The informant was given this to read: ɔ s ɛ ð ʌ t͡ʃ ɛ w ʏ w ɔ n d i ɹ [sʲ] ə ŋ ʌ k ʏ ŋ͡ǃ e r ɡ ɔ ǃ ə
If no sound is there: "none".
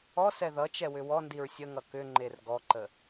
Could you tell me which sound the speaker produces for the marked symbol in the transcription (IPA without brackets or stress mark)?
sʲ